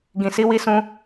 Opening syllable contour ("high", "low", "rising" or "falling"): low